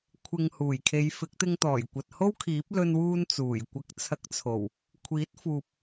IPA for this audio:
kʷʰ ɪ˨ ŋ h uː˨˩ j kʰ e˨˧ j f ɪ˨˥ k̚ t̪ ɪ˧ ŋ t̪ ɔː˨˩ j kʷ ɐ˨ t̚ h o˥ w kʰ iː˨˥ p̚ l ɵ˧ n w uː˧ n t͡s uː˨˩ j kʷ ɐ˨˥ k̚ t͡sʰ ɐ˨˥ k̚ t͡sʰ o˨˩ w | kʷʰ iː˨˥ t̚ f uː˨ p̚

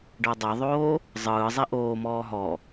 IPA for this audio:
ɖ ɤ dˤ ɛ ðˤ oː | zˤ ɯː zˤ i ʔ oː m ɔː ɦ ɔ

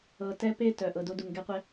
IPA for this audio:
ɤ˨ t ɛ˦ p e˦ t œ˩ ʔ ɤ˨ d o˦ d u˨ ŋ ɡ ɛ˥ qʷ ɛ˥

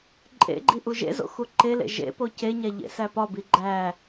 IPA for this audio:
ǃʼ ḛ ɡ͡ǃ i ʔ u ʒ ḛ z o̰ x u ǃ e l ḛ ʒ ḛ p o c e ɲ æ ʎ ḛ s æ p ɒ b i ɡ͡ǃ æ

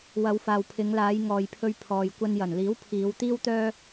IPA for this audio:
w ɐ˨˧ w f aː˨ w pʰ ɪ˨˧ ŋ l aː˨˧ j ŋ ɔː˨ j pʰ ɵ˧ ɥ pʰ ɔː˨ j kʷ ɐ˧ n j ɐ˨˩ n l iː˨˥ w pʰ iː˨˧ w t̪ iː˥ w t̪ œː˥

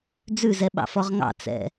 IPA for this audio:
d͡z ʉ z ɛ ɓ ɑ̰ f ɔ ʁ ŋ ɑ̰ t͡s ɛ̰

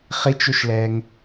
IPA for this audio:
χ i t͡ʃ u ʃ l ɛː ŋ

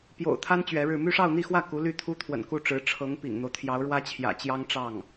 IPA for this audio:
p j o̰˨˩ ʊ̯ t̪ʰ a˥ n t͡ɕ ɥ ɛ˧˥ ɻ ɻ̩˥˧ m y˥˧ ʂ ɑ˥˧ ʊ̯ n̪ i˥˧ x w ä˥˩ k u˧˥ l y˥˩ t̪ʰ u˥ t̪ʰ w ə̰˨˩ n k u˥˩ ʈ͡ʂ ɻ̩˧˥ ʈ͡ʂʰ ɤ˧˥ ŋ p ḭ˨˩ ŋ n̪ o˦ ʊ̯ t̪ʰ j ɑ˧˥ ʊ̯ ɻ w ä˥ t͡ɕʰ j ä̰˨˩ t͡ɕ j ɑ˥ ŋ ʈ͡ʂ ɑ˥˩ ŋ

